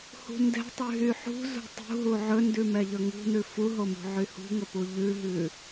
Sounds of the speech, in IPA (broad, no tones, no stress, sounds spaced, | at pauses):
h ṳ n d ɛ̤ tˤ y ɦ y ħ ṳ z ṳ tˤ ṳ ɦ u ʕ ɵ n d ʉ m ɛ ʎ ɵ ŋ ṳ n ʉ f u ɦ o m ṳ ʕ y h ṳ ŋ ɵ p u ʎ ʉ ɦ ʉ